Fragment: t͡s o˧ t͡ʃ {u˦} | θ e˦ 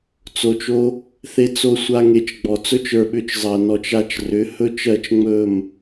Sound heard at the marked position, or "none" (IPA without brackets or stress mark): o˦